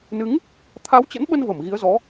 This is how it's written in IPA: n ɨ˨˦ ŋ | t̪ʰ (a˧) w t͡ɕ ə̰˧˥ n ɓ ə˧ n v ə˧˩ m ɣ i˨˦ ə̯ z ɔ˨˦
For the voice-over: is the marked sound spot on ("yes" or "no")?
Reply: no